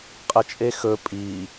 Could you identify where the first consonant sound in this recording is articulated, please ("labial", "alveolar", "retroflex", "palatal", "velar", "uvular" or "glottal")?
uvular